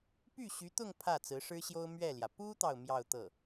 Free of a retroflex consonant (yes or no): no